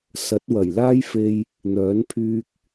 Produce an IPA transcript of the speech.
s ɐ˨˥ t̚ w ɐ˨˩ j l aː˥ j f e˧ j | n̪ œː˨˥ n pʰ yː˧ k̚

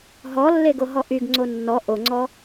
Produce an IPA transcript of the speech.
ɦ ɔ lː e ɡ o ɦ ɔ ʔ y ɡ ŋ͡ǀ o nː ɔ ʔ o ŋ͡ǀ ɔ

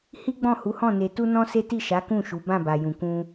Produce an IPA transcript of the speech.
h i˦ ɡ͡b ɔ̃˦˨ h u˨˦ h ɔ̃˦˨ n e˧ t u˦ n ɔ̃˦ s e˦ t i˦˨ ʃ a˨˦ k ũ˦˨ ʃ u˨˦ b ã˦˨ b a˨ j ũ˨ k ũ˧

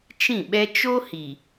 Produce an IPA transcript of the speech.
t͡ʃ ĩ˦˨ ɓ ɛ˦ t͡ʃ o˦ h i˨

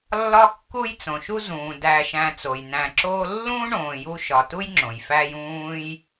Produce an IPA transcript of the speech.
lː ɒ˦ kː u˦ j t͡s õ˩ ʃ u˦ z ũː˩ d æ˨ ʃ æ̃˨ t͡s o˩ j n æ̃˨ ǁ oː˦ lː ũ˥ ɳ õː˨ j u˦ ʃ ɒ˨ t u˥ j ŋ͡ǁ õ˩ j f æ˦ j ũː˦ j

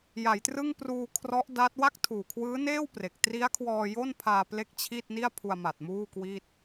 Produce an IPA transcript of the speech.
j a˩˦ j t r ɯ˥˩ ŋ p r uː˧ kʰ r ɔ˦˥ ʔ d a˦˥ t̚ w a˥˩ k̚ tʰ uː˨˩ kʰ w ɯː˦˥ n eː˥˩ w p r e˨˩ k̚ t r i˦˥ a̯ kʰ w ɔː˧ j o˥˩ n pʰ aː˧ p l e˦˥ k̚ t͡ɕʰ i˥˩ t̚ n i˥˩ a̯ pʰ u˧ a̯ m a˨˩ t̚ m uː˥˩ k w i˥˩ t̚

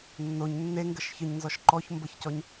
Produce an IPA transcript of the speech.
nː o ɲ nː e ŋ ɡ ə ʃ ç ə ɲ n z ɔ ʃ ǃ ɔ ç m b ə ç c ɔ ɲ

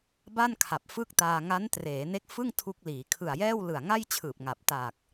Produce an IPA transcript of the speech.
b a˥˩ n kʰ a˨˩ p̚ f ɯ˥˩ k̚ t aː˧ ŋ a˦˥ n t r eː˩˦ n e˦˥ k̚ f ɯ˥˩ ŋ tʰ u˦˥ k̚ l iː˩˦ kʰ ɯ˨˩ a̯ j ɛː˥˩ w l ɯ˨˩ a̯ ŋ a˥˩ j t͡ɕʰ ɯː˨˩ p̚ ŋ a˨˩ p̚ t aː˨˩ k̚

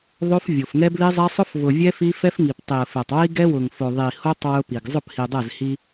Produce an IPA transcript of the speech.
ðˤ o˦ f vʲ o˨ f ŋ ɛ˦ b l i˦ zˤ ɛ˦ sˤ ʊ˦ f v ʊ˨ vʲ ɛ˦ f i˦ f ɛ˦ f ŋ i˨ p tˤ i˨ ə̯ f ɛ˨ tˤ w i˦ ɡ ɛ˦ w ʊ˨ ŋ f o˨ ðˤ i˨ h o˦ tˤ w ʊ˦ p i˨ ɡ zˤ ʊ˦˨ p h i˨ dˤ ɛ˦˨ z h i˦

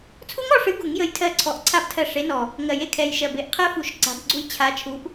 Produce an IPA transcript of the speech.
t͡sʰ u˦˥ ŋ ɔ˦˨ ʂ ɨ˨˦ ɡ u˨˩˦ ŋ j ə˨˦ j tʰ ɜ˦˨ ǀʰ ɔ˨˩ ʔ ǀʰ a˦˥ b tʰ ɜ˦˨ ʂ e˨˦ n ɔ˨˩ | ŋ ɜ˨˩ j e˦˨ kʰ ɛ˨˩ j ʃ ɜ˨˩ b e˨˩˦ ʔ qʰ ɜ˦˥ f u˨˩˦ ʃ ǀ a̤˨˦ b ɡ͡ǀ u˦˥ j t͡ɕʰ a˨˦ t͡ʃʰ u˨˦ ʔ

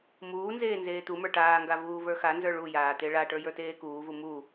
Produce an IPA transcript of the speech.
m uː n z eː n z eː t̪ u m ə˞ ʈ aː ŋ ɡ a v uː v ə˞ x a n z ə˞ ɭ u j aː t̪ e ɭ a ʈ ə˞ j ə˞ t eː k uː v u m u

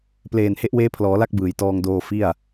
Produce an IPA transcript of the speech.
p l eː˨˩ n h e˦˥ ʔ w eː˦˥ pʰ l ɔː˩˦ l a˥˩ k̚ b ɯː˨˩ j t ɔː˧ ŋ d oː˧ f i˥˩ a̯

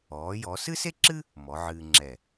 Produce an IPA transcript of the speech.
ɔː˩˧ j ɔ˩˧ s ɨ˥ s e˥ ǁ ɨ˥ | m ɔ˩˧ ʕ ɨː˧ ŋ͡ǁ ɛ˧˩

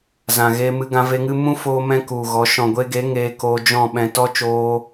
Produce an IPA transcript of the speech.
z ã˨ ɣ e˧ m ɨ˧ ɡ ã˧ v e˧ ŋ ɨ˦ m ũ˦ f oː˧ m ɛ̃˧ k u˨ ɣ ɔ˨˦ ʃ ɔ̃˨ ɡʷ e˧ ɡ e˨˦ ŋ eː˧ k oː˧ d͡ʒ ɔ̃˦˨ ɓ ɛ̃˨ t ɔ˦ t͡ʃ oː˧

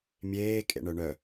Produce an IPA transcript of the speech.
mʲ eː kʼ ḛ ɳ œ ɳ œ

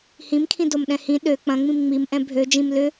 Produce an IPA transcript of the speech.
h ĩ m kʰ ĩ d o m ɗ ɛ̃ h ĩ ɗ ø k͡p ɐ̃ ŋ͡m ĩ m ŋ͡m i m ʔ ɛ̃ bʱ ø d͡ʒ ĩ m l ʏ

